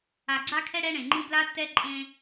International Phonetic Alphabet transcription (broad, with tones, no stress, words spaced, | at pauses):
a˨ɡ͡ǀa˦kʰɛ˦ ɽɛ˦ɳẽ˨ŋ͡ǃĩ˦ bla˦tːɛ˦ǃʼẽ˦